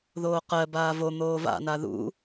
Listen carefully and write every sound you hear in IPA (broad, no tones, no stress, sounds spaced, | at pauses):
ð oː q ɜ b aː v o n̪ oː v a̰ n a ð ṵ